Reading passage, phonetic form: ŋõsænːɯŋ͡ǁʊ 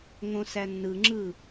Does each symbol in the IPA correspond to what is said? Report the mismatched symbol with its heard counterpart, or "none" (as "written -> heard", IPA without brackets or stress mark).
ʊ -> ɯ